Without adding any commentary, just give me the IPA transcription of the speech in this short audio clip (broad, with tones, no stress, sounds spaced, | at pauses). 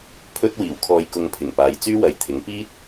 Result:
pʰ ɵ˧ t̚ w iː˨˩ w kʰ ɔː˨ j k ʊ˨ ŋ pʰ ɪ˨˩ ŋ p aː˨˧ j t͡s yː˥ w ɐ˨ j t̪ʰ ɪ˨˥ ŋ p iː˥ t̚